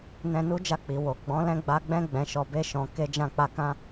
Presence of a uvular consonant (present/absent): absent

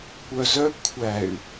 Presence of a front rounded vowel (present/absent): present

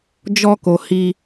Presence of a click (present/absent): absent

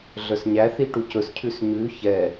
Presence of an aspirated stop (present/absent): present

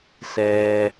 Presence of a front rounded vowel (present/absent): absent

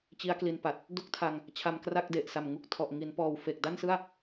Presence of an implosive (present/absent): absent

